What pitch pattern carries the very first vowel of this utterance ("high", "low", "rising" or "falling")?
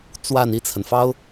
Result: falling